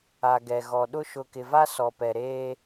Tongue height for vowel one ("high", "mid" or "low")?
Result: low